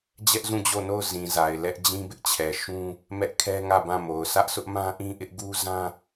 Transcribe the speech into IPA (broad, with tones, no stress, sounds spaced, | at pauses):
d͡ʑ ɛ˦ ʔ z ũ˦˨ d͡ʑ o˦˨ n o˦˨ ʊ̯ z ĩ˨ z a˨ ɪ̯ l ɛ˦ ʔ d͡ʑ ĩ˦ b ɪ˦ ʔ t͡ɕʰ ɛ˨ ʃ ũ˦ | m ɛ˦ ʔ kʰ ɛ˦ ŋ ä˦˨ b ã˦˨ m o˨ ʊ̯ s ä˦ ʔ sʰ ʊ˦ ʔ m ã˦ ʔ ĩ˦ ʔ ɪ˦ ʔ ɡ u˦ z ã˦